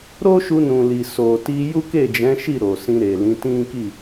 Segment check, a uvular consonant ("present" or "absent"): absent